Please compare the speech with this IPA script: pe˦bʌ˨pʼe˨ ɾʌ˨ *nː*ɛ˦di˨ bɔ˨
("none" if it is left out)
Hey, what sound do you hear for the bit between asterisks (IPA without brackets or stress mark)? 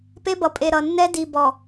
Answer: nː